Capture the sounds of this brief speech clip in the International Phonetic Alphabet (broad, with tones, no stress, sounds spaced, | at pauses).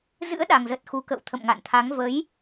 z ɨ̰˧˥ ə̯ ɗ a˨˩ ŋ z ə˨˩ t̚ x u˨˦ k ə̰˧˨ w t̪ʰ ə̰˧˨ m ŋ a̰˧˨ n t̪ʰ a˨˦ ŋ v ə˨˦ j